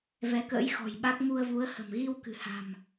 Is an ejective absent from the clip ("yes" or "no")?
yes